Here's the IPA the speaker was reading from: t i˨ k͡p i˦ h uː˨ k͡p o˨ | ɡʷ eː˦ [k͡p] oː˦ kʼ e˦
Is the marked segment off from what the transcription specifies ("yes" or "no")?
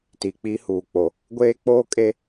no